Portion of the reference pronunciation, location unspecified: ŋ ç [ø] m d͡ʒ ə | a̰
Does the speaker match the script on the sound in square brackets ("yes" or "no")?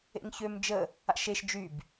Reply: yes